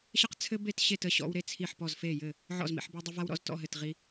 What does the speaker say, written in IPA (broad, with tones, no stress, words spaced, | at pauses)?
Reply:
ɕə˦qt͡sʰɘ˦ be˦˨tɕe˦˨tə˦˨ ɕɔ̰˦wɾe˦˨t͡sʰi˦˨ħpɔ˦˨z fe˦˨jɘ˦˨ | ʕɔ̰˦˨zmḭ˦˨ħbə˦wdˤə˦ va˦wɾɔ̰˦z tɔ̰˦˨ ɦɘ˦˨tʁi˦